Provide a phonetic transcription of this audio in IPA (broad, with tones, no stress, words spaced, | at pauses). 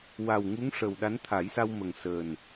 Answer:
wa˨˩w ŋu˧˥ŋʂə˨˩w ɗa˧˥nt̪ʰa˨˩˦jsa˧w mə˨˩ŋsəː˨˩n